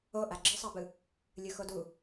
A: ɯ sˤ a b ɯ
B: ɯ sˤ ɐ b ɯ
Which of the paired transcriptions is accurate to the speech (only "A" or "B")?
A